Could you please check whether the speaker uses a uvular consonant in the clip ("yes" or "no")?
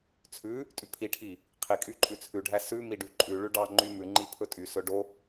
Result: yes